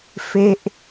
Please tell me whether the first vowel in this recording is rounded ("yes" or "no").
no